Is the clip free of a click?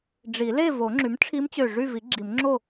no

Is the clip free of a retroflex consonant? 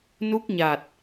yes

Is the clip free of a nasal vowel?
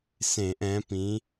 no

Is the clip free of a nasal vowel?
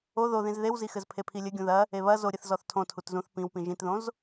no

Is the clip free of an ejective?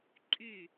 no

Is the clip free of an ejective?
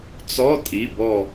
no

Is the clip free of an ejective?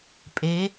no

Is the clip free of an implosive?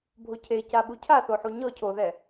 no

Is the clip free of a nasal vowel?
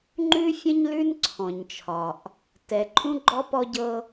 no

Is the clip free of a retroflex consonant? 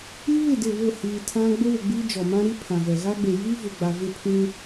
yes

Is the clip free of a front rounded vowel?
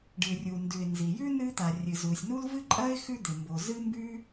yes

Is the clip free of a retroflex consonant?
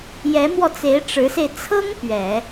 no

